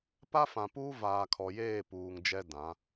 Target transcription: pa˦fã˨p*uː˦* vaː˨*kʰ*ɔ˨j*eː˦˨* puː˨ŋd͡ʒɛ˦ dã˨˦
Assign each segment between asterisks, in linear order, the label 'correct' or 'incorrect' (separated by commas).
correct, correct, correct